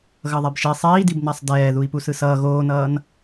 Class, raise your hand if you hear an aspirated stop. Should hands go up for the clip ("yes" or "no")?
no